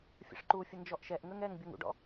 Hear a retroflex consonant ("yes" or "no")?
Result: yes